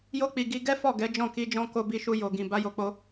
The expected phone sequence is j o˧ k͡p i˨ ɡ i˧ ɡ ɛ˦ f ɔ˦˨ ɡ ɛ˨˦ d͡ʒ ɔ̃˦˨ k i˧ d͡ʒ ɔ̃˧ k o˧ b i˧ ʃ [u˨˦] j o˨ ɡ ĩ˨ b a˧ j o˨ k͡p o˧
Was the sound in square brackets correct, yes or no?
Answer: no